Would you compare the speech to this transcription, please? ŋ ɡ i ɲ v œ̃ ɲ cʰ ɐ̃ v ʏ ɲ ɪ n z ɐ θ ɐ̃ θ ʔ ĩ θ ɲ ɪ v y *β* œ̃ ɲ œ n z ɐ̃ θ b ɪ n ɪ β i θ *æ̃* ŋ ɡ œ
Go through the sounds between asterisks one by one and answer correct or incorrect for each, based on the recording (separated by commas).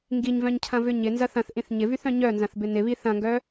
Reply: incorrect, incorrect